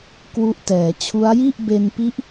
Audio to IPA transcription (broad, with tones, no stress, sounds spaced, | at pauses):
k w u˦˥ ʔ t ɛː˩˦ t͡ɕʰ u˦˥ a̯ j i˥˩ ʔ b e˧ n p i˦˥ ʔ